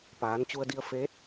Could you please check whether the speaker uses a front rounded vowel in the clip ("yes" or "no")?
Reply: no